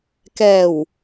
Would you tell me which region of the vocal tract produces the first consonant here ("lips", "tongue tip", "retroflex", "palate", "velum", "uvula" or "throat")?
velum